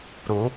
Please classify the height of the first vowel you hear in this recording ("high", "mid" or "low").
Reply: high